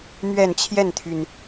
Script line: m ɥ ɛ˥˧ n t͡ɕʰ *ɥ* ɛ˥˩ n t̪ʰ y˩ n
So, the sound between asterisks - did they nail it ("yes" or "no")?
no